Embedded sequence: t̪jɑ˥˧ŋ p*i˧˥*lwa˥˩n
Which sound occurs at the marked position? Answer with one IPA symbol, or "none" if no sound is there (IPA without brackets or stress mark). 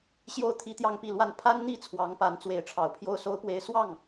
i˥˧